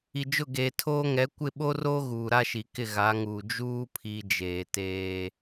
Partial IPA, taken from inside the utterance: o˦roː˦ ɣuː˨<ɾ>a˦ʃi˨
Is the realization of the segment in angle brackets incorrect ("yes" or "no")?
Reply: no